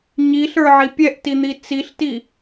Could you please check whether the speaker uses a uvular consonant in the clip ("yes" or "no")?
no